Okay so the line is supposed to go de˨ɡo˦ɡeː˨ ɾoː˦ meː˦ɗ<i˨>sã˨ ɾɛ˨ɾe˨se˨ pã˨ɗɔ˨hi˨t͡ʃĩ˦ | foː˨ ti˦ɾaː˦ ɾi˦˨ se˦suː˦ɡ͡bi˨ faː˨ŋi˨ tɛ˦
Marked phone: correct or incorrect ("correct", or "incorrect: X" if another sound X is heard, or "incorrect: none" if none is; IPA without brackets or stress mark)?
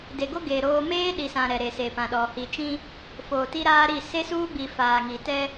correct